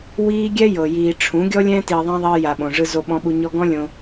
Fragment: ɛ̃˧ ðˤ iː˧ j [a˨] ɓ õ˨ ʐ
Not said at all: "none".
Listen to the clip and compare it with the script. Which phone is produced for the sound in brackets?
a˨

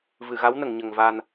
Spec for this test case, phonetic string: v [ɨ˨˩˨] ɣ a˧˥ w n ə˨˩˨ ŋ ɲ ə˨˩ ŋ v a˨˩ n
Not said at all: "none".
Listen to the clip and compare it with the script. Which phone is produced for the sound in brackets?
ɨ˨˩˨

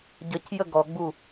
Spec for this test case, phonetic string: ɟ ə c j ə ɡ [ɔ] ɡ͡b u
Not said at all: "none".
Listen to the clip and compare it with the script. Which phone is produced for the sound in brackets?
ɔ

